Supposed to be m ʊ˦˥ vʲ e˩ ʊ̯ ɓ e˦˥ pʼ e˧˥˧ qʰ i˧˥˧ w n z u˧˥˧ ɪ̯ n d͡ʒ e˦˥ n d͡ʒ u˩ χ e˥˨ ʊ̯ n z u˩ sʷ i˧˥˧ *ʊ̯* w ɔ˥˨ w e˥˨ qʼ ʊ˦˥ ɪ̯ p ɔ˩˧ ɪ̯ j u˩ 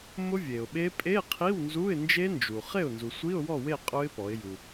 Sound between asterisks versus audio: correct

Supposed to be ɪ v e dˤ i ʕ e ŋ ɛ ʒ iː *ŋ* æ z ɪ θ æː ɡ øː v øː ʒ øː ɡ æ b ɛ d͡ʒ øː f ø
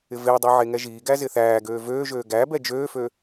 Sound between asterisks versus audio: incorrect: ɡ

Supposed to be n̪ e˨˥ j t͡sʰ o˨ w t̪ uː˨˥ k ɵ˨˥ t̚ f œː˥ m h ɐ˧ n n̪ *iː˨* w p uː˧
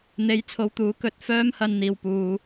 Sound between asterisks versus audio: correct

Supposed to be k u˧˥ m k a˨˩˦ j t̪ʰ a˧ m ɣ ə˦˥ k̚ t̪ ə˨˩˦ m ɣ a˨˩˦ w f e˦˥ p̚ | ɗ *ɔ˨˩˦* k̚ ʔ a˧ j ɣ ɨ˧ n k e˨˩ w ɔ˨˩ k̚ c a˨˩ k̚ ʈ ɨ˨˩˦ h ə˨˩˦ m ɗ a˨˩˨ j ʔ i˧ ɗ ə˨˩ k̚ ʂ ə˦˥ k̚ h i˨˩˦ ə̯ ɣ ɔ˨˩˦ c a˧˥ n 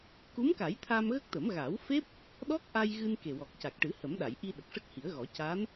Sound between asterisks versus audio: incorrect: ɔ˦˥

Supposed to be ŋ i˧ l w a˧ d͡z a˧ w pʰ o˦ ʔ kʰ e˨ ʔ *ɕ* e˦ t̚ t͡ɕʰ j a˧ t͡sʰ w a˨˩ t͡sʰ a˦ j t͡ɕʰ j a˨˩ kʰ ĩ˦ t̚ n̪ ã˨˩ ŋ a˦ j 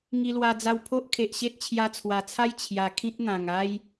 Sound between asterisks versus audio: correct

